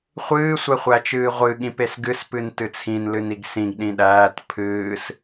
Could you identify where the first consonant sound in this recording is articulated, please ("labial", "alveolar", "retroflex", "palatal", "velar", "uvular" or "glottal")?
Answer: uvular